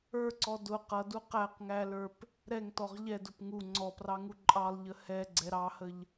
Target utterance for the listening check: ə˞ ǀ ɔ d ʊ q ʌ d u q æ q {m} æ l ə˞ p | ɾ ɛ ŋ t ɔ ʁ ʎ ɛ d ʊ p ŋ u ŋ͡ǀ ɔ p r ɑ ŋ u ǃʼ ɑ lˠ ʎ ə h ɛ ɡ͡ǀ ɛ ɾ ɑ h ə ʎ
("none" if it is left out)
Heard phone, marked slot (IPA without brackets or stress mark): ŋ